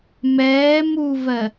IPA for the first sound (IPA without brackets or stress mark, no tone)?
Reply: m